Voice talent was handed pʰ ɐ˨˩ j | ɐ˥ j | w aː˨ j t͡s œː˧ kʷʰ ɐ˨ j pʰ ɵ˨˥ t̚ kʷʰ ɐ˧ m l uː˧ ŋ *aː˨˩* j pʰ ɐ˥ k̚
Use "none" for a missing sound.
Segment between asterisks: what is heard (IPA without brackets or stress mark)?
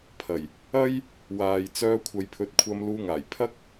aː˨˩